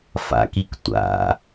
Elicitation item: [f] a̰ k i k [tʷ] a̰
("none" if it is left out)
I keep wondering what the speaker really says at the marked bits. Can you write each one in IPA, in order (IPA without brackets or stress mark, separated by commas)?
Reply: f, tʷ